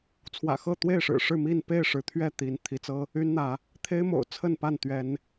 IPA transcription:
t͡sʰwä̰˨˩xɤ˥˨t̪we˥˨ɪ̯ʂɻ̩˨˩ ʂɻ̩˥˨mi˥˨n pe˥˨ɪ̯ ʂɻ̩˨˦t̪ʰɥɛ˥˨ t̪i˨˦n t̪ʰi˨˦t͡sɤ˦ | y˦nn̪ä˨˦ | t̪ʰe˦ɪ̯mo̰˨˩ʊ̯ t͡sʰə˥˨npa˥˨n t̪ɥɛ˨˦n

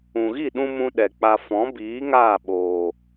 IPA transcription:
ũ˨ɣi˦˨ɗũ˧ mũ˦ɗɛ˨k͡pa˧ fɔ̃˨˦biː˨˦ ŋaː˦˨ɓoː˨

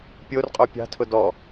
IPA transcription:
pʲorqʼo pʲɑ̤tʰʊ dɔ

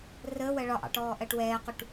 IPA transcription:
rəːwɜ ɭɒʔɑ̰ʈɔː ʔɜʈwɛːquʈ

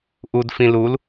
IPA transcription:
ʔud fĩlul

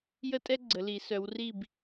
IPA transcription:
jə˦tʼɛ˦ɡ͡ǀə˩˧ li˩˧ sœ˩˧wri˧˩b

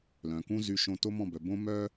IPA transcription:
lœ̃˩kũ˥zy˧ ʃõ˧to˥mɔ̃˥˩bœ˩ bõ˥mœ˥

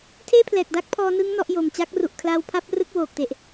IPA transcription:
tʰeː˥˩pʰlɛː˨˩k̚da˦˥k̚pʰɔː˧ nɯ˦˥ŋ nɔ˦˥ʔjo˨˩m t͡ɕa˦˥k̚ru˨˩ʔkʰlaː˧w pʰa˦˥p̚rɯ˦˥k̚ woː˨˩k̚te˨˩ʔ

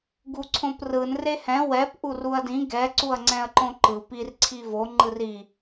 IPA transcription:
ɡuǀʰõprɯn rehɛ̃ wɛp ʔuruɐ̯dĩ ɡɛ ǀuɐ̯ŋ͡ǀɛ̃ɐ̯ǃõǃɯ pir ǀʰivo ŋ͡ǃɯri

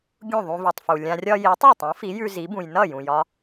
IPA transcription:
ɡʲũ˥˩ðˤũ˧vʉ˩tˤfu˩ lʲã˧rʲɒ˥ ji˩˥tˤi˥˩tˤũ˩˥fi˩˥ jʉ˧zi˩˥bũ˩j nʌ˥˩jũ˩jɒ˧

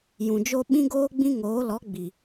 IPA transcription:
jũ˨d͡ʒo˦ ɓĩ˦ɡoː˦ɡ͡bĩ˦ŋoː˨˦ lɔ˨˦ɡ͡bi˨

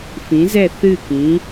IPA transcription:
fĩ˩˥zɛ˥˩θɨ˥˩kĩ˩˥

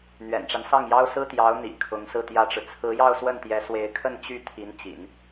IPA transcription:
n̪ɥɛ̰˨˩nʈ͡ʂa˦n sɑ˥˩ŋjɑ˥ʊ̯ sɹ̩˥t̪jɑ˧˥ʊ̯ n̪ḭ˨˩ kʰʊ˧˥ŋsɹ̩˥˩t̪jä˥ʈ͡ʂɻ̩˨ t͡sʰɹ̩˧˥jɑ˥˧ʊ̯swə˥˩nt̪jɛ˧˥ swe˧˥ɪ̯kʰə˥˧n t͡ɕy˥˩ t̪ʰi˧˥nt͡ɕḭ˨˩˦n

